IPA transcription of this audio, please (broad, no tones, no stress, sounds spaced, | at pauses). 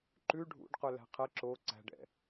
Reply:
ǃ ʉ ɖʱ ṵ ɖ q ɵ l æ̤ qʰ ɛ ǁ o ǀ æ̤ ɖ ɛ̰